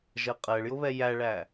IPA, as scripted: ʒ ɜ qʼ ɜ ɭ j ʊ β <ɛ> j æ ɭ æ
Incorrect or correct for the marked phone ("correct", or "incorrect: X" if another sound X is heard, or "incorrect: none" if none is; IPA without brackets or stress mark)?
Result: correct